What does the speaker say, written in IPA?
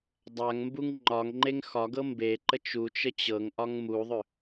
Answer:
dˤaŋ mbuŋŋ͡ǃɒŋŋ͡ǃeŋ xɒɡɤ mbe ǃət͡ʃut͡ʃə t͡ɕɤŋʔɒŋ muðˤʏ

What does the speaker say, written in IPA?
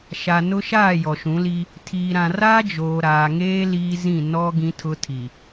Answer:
ʃa˨ nʊ˦ʃaː˦˨ jɔ˨ʃũ˨˦li˦ | tʰiː˨ɾã˨ raː˦d͡ʒoː˨ ɾaː˨ŋeː˦ liː˦zĩ˦˨ nɔ˦ ɡĩ˦tʰʊ˦tʰi˨

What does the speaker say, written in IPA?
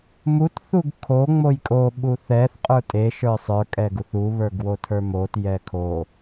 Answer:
mut θuɡkʰo ŋ͡mojkʼo ɓuθɛθ qʼə˞tʼe ʃə˞sˤə˞ kʼɛɡuθu βə˞ɡwotʰə˞mot jɛkʰo

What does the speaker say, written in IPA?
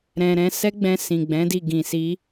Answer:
ɾɛ̃˧ɾɛ̃˦ sɛ˦ɡ͡bɛ̃˧ sĩ˨ɡ͡bɛ̃˨˦di˦˨ ɡĩ˨si˨˦

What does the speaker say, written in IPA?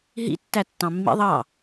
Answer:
ɦḭ tːætːɑ̃mːḭ ðˤɑ

